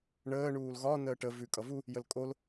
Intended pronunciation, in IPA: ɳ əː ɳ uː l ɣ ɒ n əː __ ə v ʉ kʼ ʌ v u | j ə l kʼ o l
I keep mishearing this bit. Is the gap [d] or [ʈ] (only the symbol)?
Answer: ʈ